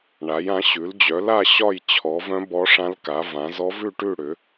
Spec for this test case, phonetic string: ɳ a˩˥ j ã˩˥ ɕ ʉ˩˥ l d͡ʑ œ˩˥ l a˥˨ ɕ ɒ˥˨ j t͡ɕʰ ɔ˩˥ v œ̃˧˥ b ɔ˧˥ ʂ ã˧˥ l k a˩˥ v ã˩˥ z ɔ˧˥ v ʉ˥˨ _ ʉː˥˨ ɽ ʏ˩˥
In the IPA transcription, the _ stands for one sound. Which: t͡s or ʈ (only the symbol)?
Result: ʈ